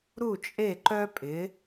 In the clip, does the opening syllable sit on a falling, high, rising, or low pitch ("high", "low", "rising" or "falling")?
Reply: falling